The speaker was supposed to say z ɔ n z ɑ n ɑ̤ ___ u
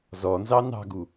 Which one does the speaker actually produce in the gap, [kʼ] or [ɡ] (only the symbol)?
ɡ